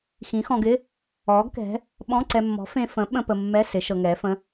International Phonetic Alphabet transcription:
xĩ˨˥xɔ̃˧ɡɪ˧˥˧ | ɔː˨˥ɡkɛ̤˨˥ | ɓɔ̃˧˥˧ǀɛ˧mːɔ̤˨˥ fẽ˧fə̃˨˥ ɓə̃˧˥˧ pə˧mːɛ˧˥˧ sɪ˨˥ ʃɤ˧ŋɛː˨˥fə̃˧˥˧

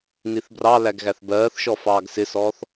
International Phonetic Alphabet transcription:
niθbrɑlæɡ ɣæθbɜːθʃɔ fɑːɡsɪsɔːθ

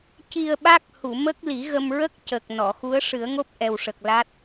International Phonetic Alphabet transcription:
ci˧ə̯ɓa˦˥k̚ hu˨˩˨mə˦˥k̚ li˨˩˦ɣə˧mɹə˦˥k̚ cə˨˩k̚ nɔ˨˩˨xu˧˥ə̯ ʂɨ˨˩˦ə̯ŋo˦˥p̚ʔɛ˨˩wʂə˨˩k̚ la˦˥t̚

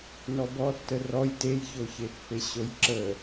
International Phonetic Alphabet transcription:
nɔbɔtːə rɔj tejçoçepːe ɕojǁə

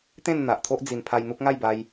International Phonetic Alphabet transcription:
t̪ẽ˥˧n n̪a˨ʔt̪ʰo˦ʔ d͡zi˨˩npʰa˧j n̪u˦k̚ ŋa˥˧jba˧j

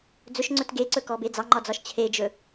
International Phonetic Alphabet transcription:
d͡zɵʃŋ͡ǀɵt ɡeǀɵkɔbe d͡zɑŋ͡ǃɒd͡zɒʃ t͡ɕʰed͡ʒɵ

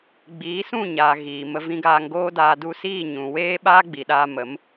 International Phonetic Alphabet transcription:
ɡ͡biː˨˦sũ˦˨ɲaː˨ ɣiː˨mə˧ vĩ˧ɡaː˧ŋɡoː˦daː˧ du˧siː˦˨ ɲũ˨weː˦ɓaː˦ ɡ͡bi˨ɗaː˧ mə˨˦m

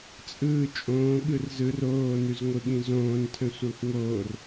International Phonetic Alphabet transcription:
t͡sʼɯː t͡ʃʼõːɠɯr zɯr oːnʉzŋʷɯɠĩ zõːntʰə̃sʷakʷ ŋoːr

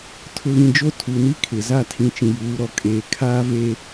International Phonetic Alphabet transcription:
tʰʊ˨ɣĩ˨ d͡ʒo˦tʰu˨ni˦ kʰɪ˨ za˦˨tʰĩ˨t͡ʃĩ˨ juː˨˦ɾɔ˨ kʼeː˨ kʰaː˦ve˦

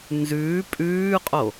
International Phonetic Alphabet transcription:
nzʉː pʼʉːqʼo

